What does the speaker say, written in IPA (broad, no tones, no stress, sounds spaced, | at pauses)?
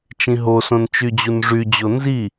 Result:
t͡ʃ ĩ ɦ o s õ n t͡ʃ y d͡ʑ u n ʐ y d͡ʑ o n z i